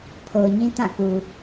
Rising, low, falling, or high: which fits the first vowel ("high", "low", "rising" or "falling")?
low